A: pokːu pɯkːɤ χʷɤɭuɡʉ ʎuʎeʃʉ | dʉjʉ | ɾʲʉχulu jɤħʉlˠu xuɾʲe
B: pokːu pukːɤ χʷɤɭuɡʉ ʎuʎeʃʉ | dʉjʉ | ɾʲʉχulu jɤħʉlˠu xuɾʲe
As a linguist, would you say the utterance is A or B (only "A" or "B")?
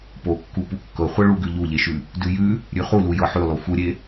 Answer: B